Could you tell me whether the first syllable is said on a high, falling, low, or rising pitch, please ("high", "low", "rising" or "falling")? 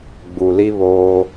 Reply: low